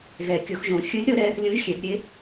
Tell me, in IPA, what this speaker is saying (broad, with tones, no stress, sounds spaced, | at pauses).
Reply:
ɣ ɛ˨˩˦ kʲ o˨˩˦ x ʒ õ˨˩˦ xʲ ɯ˧˥ lʲ ɾ ɤ˧˥ ɾ ɛ˧˥ | lʲ õ˧˥ ʒ xʲ ɛ˨˩˦ b ɾʲ e˧˥